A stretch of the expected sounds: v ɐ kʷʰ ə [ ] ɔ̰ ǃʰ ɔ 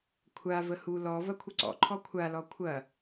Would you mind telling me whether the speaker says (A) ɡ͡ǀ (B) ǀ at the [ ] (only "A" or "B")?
B